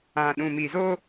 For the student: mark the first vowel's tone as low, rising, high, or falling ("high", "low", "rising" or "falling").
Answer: low